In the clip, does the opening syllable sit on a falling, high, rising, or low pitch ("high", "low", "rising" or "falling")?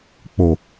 low